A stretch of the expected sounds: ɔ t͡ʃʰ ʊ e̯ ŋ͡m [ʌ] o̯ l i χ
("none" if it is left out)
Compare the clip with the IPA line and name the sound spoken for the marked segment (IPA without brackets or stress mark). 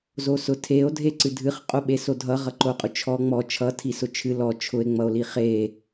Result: ʌ